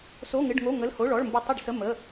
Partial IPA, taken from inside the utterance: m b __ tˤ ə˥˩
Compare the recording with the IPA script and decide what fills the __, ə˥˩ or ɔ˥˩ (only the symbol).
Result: ə˥˩